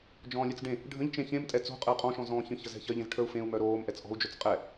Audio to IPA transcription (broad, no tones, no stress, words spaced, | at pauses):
d͡ʒɔ̃ːlʲœt͡sɖẽ | ɖʱə̃ʎt͡ʃẽ çẽm tʼɛt͡so̤qʼəu̯ qʼɔ̃ʃɔ̃ zɔ̃ːçə̃ çəzɛ̤çɜʎẽz ʈʰə˞u̯fẽu̯ mœɾoːm ʔɛt͡sʔɔ̤u̯d͡ʒœt͡s qʼɛ